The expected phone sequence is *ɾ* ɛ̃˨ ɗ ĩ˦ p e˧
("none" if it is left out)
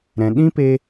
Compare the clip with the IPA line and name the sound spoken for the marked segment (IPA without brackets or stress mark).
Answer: ɾ